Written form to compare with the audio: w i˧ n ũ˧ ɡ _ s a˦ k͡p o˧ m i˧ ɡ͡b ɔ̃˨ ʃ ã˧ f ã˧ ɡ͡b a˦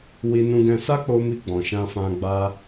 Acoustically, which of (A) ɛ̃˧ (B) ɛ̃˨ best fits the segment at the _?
A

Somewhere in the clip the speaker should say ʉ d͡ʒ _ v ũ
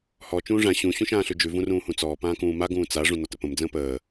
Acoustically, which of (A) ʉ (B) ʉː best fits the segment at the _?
A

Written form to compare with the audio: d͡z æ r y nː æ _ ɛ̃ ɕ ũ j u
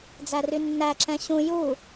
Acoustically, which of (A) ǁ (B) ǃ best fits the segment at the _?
A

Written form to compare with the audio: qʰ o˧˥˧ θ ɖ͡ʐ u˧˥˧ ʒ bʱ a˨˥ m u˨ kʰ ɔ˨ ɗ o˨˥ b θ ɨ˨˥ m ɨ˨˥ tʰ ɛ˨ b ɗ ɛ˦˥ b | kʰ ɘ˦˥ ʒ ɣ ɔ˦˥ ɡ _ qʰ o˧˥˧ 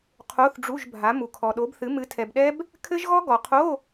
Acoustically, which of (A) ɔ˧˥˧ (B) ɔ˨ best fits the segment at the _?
B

